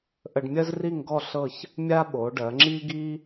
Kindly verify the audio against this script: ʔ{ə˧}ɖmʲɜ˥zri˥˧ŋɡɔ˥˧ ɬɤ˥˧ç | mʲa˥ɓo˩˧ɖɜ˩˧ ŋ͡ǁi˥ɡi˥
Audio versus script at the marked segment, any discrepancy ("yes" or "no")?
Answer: no